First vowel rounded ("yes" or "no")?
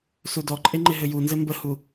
yes